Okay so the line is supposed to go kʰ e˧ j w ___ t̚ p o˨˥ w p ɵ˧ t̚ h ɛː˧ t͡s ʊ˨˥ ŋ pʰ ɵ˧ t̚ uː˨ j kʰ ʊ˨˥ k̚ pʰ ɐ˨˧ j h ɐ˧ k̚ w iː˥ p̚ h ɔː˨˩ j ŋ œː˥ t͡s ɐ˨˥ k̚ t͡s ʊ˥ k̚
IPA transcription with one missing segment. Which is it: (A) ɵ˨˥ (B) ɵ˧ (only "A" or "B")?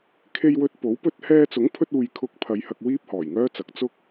B